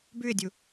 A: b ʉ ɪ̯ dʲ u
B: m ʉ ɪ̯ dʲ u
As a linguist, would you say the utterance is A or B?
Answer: A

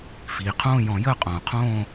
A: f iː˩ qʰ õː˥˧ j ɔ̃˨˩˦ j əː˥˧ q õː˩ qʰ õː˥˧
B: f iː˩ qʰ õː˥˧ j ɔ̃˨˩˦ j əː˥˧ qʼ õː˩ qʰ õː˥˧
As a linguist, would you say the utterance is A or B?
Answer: B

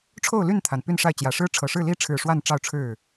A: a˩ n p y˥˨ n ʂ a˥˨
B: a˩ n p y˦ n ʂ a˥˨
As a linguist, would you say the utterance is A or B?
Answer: A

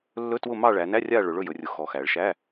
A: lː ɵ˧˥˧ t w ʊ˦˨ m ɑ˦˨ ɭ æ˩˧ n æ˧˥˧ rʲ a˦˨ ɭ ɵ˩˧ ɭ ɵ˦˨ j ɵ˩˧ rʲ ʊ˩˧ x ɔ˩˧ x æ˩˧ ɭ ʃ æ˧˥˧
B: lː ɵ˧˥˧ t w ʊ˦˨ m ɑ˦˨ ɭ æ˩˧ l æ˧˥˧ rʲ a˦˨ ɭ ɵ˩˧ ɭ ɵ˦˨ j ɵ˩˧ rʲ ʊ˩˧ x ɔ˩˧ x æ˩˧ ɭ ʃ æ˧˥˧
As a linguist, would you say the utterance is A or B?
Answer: A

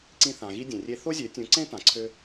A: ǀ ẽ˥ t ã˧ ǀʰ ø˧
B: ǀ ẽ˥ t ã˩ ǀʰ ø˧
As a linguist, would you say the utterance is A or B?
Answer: B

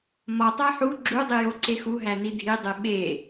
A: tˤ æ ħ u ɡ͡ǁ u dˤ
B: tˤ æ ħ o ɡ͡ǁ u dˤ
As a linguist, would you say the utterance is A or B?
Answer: A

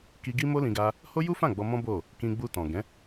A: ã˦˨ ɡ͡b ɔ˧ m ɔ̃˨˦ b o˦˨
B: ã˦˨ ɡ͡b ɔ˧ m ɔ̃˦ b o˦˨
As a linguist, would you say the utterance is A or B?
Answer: B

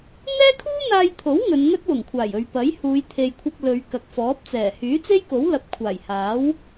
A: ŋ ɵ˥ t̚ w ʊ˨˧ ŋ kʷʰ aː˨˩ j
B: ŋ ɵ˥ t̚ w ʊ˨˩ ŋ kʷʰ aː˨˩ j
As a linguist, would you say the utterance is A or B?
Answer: B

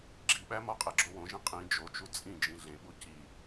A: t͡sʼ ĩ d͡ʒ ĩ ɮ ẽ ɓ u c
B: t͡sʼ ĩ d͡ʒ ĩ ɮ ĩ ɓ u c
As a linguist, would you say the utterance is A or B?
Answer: A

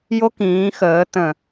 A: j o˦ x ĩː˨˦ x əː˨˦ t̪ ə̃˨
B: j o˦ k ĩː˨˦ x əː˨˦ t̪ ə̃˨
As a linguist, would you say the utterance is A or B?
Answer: B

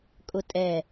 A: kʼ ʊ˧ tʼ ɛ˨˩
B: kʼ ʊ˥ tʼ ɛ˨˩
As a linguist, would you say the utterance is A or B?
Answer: A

